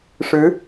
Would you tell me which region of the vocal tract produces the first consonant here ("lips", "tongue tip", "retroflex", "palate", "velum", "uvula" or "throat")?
retroflex